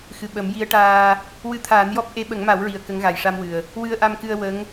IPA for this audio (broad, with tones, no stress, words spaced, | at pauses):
xɨ˨˩ ɓə˨˩˦mji˧˥ə̯ʈaː˧ | wɨ˧t̪ʰaː˨˩˦njɔ˦˥p̚ ʔe˧˥ɓə˨˩˦ŋma˨˩˦wɹi˨˩ə̯ kə˧˥ŋɣa˨˩jʂa˧mwɨ˨˩ə̯ | wɨ˧ə̯ʔa˧mkɨ˧ə̯ wə˧˥ŋ